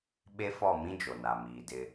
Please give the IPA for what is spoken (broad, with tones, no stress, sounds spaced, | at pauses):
ɓ e˦ f ɔ˦˨ m ĩ˦ d͡ʒ o˨ n a˨ m iː˨ d ɪ˦